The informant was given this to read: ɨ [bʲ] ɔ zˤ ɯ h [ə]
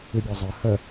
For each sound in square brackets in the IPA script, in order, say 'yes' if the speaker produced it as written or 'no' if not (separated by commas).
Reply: yes, yes